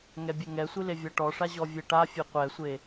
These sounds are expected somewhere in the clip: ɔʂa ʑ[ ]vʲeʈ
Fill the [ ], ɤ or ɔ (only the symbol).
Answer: ɔ